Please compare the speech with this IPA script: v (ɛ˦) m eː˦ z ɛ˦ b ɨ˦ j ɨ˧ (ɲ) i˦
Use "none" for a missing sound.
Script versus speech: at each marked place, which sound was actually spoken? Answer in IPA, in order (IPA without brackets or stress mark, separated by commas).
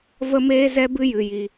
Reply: ə˦, j